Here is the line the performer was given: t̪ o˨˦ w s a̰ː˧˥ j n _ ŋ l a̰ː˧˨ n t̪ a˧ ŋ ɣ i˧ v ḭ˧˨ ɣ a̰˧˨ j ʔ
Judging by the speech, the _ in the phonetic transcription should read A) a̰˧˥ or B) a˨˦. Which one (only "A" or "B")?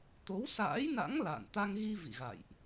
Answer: A